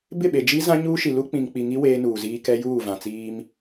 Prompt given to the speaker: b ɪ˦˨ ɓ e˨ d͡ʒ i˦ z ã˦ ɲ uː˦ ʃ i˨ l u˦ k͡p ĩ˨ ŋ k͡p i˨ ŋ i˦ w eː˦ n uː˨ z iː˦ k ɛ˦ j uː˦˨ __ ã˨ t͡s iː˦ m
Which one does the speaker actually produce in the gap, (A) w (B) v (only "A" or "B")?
B